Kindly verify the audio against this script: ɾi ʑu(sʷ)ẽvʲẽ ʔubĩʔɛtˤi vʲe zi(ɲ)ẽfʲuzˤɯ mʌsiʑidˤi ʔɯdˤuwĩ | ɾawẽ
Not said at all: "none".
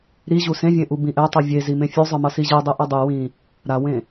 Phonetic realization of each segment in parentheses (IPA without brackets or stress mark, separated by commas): s, m